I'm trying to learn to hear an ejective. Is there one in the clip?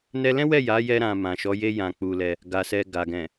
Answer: no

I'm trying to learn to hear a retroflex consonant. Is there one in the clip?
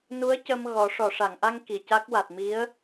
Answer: yes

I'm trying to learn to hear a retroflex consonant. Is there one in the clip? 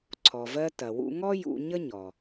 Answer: no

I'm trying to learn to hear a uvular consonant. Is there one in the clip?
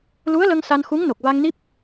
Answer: no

